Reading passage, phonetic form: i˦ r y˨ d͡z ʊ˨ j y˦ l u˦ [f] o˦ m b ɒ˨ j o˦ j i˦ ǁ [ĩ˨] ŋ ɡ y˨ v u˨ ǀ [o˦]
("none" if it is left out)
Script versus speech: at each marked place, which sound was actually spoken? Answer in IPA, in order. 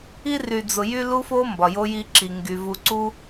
f, i˨, u˦

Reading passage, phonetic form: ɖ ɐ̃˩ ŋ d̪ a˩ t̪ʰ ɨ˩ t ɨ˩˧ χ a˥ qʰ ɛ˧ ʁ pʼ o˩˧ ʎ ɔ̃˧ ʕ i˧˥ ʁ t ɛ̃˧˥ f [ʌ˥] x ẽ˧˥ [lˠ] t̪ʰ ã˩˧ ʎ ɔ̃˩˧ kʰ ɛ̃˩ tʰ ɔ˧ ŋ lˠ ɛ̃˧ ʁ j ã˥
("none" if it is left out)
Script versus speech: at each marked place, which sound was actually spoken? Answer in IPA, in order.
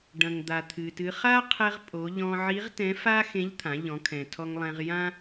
a˥, ʎ

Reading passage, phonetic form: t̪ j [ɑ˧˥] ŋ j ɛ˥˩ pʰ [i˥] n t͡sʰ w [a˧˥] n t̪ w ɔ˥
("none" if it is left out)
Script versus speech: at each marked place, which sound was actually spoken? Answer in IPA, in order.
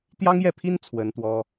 ɑ˥, i˥, ə˧˥

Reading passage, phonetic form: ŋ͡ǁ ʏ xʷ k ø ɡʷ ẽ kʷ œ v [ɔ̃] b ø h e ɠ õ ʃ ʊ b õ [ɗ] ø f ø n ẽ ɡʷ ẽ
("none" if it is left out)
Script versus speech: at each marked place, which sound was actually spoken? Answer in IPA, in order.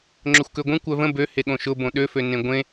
ə̃, ɗ

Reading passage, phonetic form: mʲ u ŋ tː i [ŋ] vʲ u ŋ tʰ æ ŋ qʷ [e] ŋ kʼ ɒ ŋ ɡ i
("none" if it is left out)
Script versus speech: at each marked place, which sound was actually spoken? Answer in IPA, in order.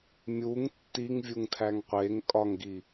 ŋ, e

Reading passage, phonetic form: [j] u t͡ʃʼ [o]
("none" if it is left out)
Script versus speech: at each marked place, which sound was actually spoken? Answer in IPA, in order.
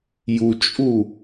j, u

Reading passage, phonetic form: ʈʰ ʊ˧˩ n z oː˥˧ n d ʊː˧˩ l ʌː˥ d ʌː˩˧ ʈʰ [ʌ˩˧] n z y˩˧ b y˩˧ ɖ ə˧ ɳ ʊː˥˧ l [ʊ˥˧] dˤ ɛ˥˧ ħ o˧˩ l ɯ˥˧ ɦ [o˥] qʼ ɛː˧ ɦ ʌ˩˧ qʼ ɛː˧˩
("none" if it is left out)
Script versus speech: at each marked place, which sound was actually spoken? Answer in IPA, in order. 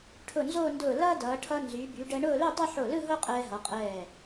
ʌ˧, ʊ˥˧, o˥

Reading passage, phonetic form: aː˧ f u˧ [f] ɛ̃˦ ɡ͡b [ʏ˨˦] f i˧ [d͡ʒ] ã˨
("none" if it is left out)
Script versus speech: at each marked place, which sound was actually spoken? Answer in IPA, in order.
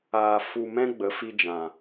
m, ə˨˦, d͡ʒ

